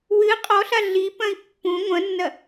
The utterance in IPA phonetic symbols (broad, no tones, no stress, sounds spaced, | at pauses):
w ɨ qʼ ɔ ɬ a ɮ i p ɐ̃ i̯ pː ũ ŋʷ ɐ̃ nː ɐ